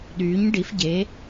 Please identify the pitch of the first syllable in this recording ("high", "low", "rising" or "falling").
rising